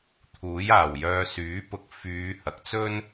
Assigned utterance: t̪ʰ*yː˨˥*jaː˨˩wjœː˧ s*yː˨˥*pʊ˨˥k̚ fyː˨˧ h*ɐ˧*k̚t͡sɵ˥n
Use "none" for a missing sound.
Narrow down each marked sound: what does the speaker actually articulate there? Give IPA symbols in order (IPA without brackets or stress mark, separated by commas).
uː˨˥, yː˨˥, ɐ˨˥